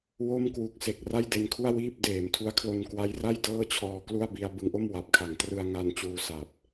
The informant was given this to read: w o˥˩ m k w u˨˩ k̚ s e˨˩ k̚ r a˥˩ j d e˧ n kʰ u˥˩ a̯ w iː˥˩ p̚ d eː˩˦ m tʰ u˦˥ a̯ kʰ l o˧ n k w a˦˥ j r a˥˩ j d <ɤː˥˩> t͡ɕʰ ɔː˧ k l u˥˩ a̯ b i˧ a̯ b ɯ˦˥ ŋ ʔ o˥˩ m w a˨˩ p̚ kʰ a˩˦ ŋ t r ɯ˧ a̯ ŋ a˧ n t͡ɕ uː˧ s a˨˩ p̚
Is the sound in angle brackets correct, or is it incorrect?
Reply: correct